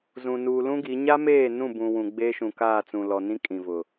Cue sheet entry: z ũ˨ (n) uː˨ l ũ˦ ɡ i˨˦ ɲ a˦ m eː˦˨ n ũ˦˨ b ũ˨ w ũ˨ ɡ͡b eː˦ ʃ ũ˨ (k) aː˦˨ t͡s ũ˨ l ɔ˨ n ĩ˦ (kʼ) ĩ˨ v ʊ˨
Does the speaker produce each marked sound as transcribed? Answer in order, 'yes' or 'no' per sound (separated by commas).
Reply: yes, yes, yes